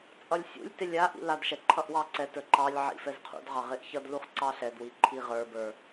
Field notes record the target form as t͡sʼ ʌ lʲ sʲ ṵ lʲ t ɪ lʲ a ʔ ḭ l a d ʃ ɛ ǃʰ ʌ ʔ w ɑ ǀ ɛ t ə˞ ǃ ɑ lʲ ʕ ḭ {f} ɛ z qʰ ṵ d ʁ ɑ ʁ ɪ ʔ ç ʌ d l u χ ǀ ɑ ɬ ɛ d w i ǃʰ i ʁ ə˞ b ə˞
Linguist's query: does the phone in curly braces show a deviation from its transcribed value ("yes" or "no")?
no